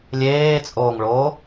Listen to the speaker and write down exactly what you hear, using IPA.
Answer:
lʲeːt͡sʼoːŋɭoː

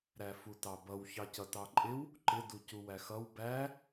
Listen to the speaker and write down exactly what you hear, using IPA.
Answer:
ɾæfutɑbʌw çɑcʌtɑǃʼɪw | ǃɪ ducuwæxʌw bæ

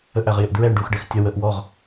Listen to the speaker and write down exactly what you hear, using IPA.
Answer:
əʔæʁjɪʔ dɹɛɳ ɖuxɖɛx tʲə wəʔ wɔʁ

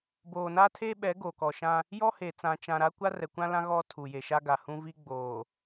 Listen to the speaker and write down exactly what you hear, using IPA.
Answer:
boː˨na˦tʰe˦ɓɛ˨˦ ɡo˨kɔ˨ʃã˦ | jɔ˦he˨t͡sã˨ t͡ʃã˨ɾa˦ kʷa˦rɛ˨kʷã˦lã˦ ɣɔ˦tʰu˨ je˨ʃa˦ɡa˨hũ˦ vi˦ ɡ͡boː˨

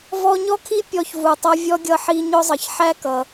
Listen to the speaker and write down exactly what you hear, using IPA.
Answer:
vɔ˦ɲɔ˥kʰi˥ pʲɔ˦çvu˨tˤʌ˦ vʲɔ˥ɡʲʌ˦ħi˦ ɲʊ˥zˤʌ˨ç ħæ˥kʌ˩

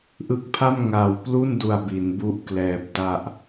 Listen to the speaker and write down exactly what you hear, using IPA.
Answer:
ʔɯ˦˥k̚pʰa˥˩m ŋa˨˩wplu˥˩ndu˨˩a̯ bi˩˦nbu˥˩ʔklɛː˨˩p̚ da˨˩ʔ

